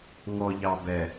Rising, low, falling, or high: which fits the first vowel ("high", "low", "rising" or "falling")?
low